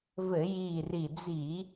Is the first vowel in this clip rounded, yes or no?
no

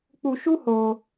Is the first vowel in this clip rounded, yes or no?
yes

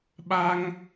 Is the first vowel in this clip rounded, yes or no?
no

